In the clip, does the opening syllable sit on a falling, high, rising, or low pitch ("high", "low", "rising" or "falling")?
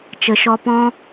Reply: low